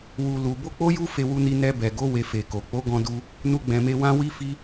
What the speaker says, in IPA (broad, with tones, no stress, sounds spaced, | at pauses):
w u˧ l u˧ b o˦ k͡p o˦ j u˦ f e˧ w u˧ n i˧ n ɛ˧ b ɛ˨ ɡ o˨˦ w e˧ f e˨ k o˨ k͡p o˨˦ ɡ ɔ̃˧ d u˧ | n u˦ ɡ͡b ɛ̃˧ m e˦ w ã˦ w i˦ f i˦